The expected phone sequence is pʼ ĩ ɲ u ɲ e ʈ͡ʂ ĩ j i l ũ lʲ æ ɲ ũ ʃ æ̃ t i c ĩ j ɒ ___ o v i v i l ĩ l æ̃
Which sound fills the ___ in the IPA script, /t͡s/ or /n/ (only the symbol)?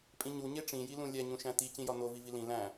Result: n